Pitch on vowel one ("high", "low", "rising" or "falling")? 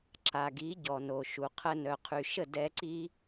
low